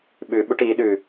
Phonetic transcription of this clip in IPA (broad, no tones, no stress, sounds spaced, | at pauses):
ɓ ʉ ɓ u ʈ i ɗ ʉ